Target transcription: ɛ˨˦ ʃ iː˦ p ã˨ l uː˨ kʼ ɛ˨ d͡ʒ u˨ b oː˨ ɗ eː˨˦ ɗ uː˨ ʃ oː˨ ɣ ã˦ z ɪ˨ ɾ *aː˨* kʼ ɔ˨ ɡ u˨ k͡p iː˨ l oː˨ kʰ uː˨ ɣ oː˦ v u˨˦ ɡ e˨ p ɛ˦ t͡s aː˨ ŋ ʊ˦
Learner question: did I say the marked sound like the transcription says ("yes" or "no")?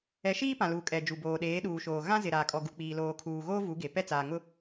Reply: yes